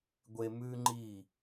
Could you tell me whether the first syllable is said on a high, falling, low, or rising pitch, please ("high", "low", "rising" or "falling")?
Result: low